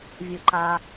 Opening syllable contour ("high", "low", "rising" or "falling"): low